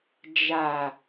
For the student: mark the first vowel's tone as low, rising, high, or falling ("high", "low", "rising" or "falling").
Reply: low